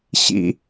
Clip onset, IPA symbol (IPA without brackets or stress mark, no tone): ɕ